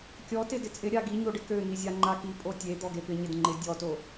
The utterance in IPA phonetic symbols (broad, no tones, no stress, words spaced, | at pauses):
kʲɔtɪ dɪt͡sʼɪ ɾʲaɡiɲoɖɪ køn̪izʲa ŋ͡ǃaki pʼotʲe d̪ɔɡepɪ ɲɪdŋ͡ǃɪ dʲɔto